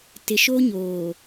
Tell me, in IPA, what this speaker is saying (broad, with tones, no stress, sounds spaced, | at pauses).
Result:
t ɪ˨ ʃ o˦ ɲ oː˨